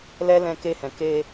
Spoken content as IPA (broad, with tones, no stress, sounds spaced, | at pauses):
l ɛ˦ l ɛ̃˧ k e˧ h ɛ̃˨ k e˧